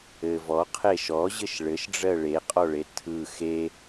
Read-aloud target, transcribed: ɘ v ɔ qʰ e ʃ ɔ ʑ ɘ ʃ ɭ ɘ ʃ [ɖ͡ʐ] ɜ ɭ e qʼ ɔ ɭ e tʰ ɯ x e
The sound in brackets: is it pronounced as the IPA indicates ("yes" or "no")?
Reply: yes